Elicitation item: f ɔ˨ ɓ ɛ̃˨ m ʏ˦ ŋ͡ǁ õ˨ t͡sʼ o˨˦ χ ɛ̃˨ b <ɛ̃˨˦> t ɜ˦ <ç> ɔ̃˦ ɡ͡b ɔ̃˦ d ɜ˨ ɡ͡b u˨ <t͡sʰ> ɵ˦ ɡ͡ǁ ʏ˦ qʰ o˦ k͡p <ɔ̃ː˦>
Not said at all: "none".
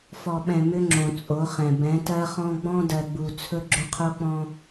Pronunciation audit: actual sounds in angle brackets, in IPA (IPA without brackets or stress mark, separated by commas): ɛ̃˨˦, χ, t͡sʰ, ɔ̃˦